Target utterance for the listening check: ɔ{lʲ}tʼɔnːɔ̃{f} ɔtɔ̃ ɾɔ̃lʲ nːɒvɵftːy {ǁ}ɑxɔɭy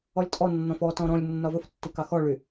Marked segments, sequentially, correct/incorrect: correct, correct, incorrect

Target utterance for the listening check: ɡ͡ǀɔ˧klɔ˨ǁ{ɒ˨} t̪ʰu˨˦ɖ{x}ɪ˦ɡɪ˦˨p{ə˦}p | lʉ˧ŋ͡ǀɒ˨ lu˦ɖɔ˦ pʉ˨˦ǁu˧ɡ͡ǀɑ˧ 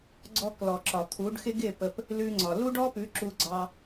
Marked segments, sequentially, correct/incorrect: correct, correct, incorrect

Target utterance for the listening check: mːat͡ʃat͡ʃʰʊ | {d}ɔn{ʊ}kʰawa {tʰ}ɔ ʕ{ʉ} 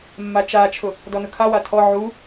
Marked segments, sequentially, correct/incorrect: correct, correct, correct, incorrect

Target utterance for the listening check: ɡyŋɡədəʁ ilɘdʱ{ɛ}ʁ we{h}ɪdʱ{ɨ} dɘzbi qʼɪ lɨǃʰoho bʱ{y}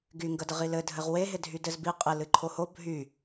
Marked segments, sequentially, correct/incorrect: incorrect, incorrect, incorrect, correct

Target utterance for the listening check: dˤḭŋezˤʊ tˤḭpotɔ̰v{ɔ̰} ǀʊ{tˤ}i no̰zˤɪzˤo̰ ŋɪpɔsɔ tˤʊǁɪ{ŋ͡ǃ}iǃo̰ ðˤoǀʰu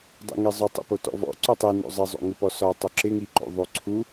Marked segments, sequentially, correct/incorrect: correct, correct, incorrect

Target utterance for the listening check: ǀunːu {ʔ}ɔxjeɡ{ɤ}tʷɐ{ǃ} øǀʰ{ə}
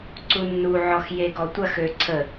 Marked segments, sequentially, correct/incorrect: incorrect, incorrect, incorrect, correct

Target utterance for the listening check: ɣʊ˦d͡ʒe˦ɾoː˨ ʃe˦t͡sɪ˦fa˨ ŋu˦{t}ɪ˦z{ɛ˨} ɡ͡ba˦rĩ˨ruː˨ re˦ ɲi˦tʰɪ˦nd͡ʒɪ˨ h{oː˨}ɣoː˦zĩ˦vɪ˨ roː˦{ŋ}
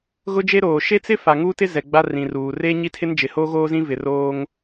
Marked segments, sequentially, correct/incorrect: correct, correct, incorrect, correct

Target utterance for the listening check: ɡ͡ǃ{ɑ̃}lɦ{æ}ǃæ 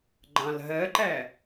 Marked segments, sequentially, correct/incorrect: correct, incorrect

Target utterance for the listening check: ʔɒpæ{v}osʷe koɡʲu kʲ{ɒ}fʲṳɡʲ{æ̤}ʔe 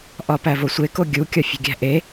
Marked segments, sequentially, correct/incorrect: correct, correct, correct

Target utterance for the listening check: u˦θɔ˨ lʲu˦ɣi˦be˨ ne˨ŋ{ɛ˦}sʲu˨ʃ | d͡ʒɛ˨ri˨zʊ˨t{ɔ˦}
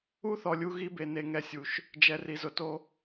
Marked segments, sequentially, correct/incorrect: incorrect, incorrect

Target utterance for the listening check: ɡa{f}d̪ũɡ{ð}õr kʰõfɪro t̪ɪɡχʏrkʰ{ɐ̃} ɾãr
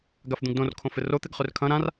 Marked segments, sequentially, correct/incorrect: correct, incorrect, correct

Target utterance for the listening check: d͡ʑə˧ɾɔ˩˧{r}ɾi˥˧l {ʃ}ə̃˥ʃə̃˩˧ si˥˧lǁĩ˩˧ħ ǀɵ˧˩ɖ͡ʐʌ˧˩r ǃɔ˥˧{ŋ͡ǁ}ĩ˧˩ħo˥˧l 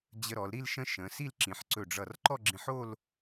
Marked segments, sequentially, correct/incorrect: incorrect, correct, incorrect

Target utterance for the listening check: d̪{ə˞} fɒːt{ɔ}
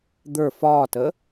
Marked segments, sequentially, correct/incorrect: correct, incorrect

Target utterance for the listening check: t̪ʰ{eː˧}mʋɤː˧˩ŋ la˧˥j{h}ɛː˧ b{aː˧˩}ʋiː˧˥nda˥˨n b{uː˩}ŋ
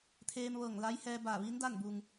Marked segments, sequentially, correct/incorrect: correct, correct, correct, correct

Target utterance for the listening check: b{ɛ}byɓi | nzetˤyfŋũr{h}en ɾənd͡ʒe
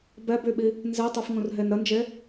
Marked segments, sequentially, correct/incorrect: correct, incorrect

